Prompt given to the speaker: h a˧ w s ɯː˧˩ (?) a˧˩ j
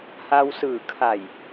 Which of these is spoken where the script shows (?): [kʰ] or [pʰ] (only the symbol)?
kʰ